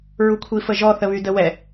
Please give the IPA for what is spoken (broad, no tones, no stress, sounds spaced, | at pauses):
ɹ u kʷʰ i f ə ʒ ɔ θ ə β y d ə w ɛ